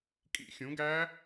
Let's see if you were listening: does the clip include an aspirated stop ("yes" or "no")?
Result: no